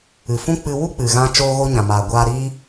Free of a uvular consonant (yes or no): yes